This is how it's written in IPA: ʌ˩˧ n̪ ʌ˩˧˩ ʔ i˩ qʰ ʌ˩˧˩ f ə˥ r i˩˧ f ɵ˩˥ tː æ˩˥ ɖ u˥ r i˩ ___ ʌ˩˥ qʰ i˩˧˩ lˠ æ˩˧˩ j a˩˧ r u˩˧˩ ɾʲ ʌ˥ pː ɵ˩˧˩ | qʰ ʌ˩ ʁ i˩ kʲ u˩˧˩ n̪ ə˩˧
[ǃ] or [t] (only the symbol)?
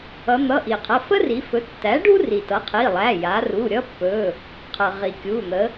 t